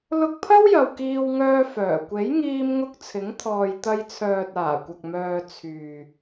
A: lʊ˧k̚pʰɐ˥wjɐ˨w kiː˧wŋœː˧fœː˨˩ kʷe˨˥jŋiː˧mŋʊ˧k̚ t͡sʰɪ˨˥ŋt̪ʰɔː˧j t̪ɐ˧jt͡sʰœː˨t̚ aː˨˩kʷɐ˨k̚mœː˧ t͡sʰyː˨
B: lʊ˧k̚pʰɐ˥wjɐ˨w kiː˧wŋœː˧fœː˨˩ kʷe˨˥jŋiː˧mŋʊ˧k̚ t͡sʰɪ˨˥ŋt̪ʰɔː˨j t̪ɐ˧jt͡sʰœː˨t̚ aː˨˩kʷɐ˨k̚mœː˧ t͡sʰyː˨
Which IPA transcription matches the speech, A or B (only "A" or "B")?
B